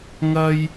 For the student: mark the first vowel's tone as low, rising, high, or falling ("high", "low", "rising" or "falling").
high